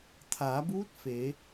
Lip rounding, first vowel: unrounded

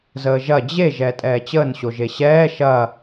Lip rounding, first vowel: unrounded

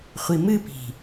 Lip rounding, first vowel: unrounded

